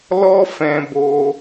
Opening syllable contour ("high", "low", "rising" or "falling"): high